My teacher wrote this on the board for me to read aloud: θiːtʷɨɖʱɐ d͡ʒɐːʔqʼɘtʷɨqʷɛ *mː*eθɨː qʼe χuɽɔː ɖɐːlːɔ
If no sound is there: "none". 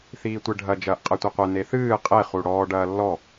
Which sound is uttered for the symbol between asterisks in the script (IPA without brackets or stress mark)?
n